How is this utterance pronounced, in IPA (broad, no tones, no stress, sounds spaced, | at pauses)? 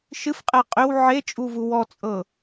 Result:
ʃ ɨ f qʼ ɛ qʼ ʏ w ʕ e t͡ʃʼ u v u w ɔ t͡sʼ ɤ